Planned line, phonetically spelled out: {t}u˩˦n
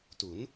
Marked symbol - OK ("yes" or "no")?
yes